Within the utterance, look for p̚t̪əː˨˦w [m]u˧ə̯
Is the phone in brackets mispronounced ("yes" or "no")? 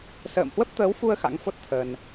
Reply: yes